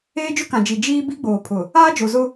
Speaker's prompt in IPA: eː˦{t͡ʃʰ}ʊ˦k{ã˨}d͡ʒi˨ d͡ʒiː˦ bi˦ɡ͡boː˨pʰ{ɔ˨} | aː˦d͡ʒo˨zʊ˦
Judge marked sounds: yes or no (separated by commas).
no, yes, no